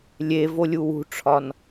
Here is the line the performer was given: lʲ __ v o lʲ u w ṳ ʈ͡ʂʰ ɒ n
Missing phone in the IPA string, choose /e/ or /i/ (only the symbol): e